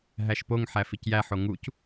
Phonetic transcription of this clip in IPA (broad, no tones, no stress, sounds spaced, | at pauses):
ɦ æ ʃ p o ŋ ħ æ f i c j æ ħ o ŋ u c